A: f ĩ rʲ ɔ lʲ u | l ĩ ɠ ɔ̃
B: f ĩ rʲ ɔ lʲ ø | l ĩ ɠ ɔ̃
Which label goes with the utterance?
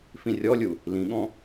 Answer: A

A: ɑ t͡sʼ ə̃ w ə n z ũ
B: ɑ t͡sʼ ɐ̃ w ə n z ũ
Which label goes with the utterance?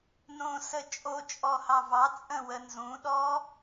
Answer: A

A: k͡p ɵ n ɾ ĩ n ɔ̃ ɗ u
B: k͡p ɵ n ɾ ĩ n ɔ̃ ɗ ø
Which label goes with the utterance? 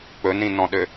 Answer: B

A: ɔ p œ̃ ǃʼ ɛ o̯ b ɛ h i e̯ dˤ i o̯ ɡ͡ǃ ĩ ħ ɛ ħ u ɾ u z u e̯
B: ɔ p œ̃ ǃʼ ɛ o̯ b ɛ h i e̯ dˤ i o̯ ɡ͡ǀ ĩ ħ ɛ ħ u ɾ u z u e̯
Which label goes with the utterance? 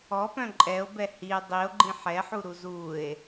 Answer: A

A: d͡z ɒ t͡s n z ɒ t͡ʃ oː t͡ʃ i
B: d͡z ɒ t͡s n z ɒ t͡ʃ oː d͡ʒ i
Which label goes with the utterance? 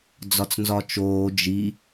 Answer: B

